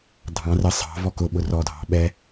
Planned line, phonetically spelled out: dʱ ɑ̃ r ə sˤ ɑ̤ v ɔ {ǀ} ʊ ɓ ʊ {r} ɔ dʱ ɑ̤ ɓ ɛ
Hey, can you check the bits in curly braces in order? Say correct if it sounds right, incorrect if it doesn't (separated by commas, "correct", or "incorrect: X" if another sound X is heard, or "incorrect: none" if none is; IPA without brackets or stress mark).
incorrect: k, correct